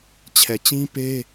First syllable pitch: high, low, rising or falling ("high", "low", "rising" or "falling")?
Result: low